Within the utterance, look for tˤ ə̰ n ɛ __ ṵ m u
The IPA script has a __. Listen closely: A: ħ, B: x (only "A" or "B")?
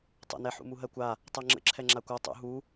A